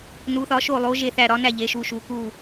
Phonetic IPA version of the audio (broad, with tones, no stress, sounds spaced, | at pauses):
n u˧˥ θ ɒ˧˥ ʃ o˥˧ lˠ o˧˥ ʒ e˥˧ θ æ˥˧ ɾ ɒ˧˥ n æ˥˧ ʎ e˧˥ ʃ u˧˥ ʃ u˧˥ k u˥˧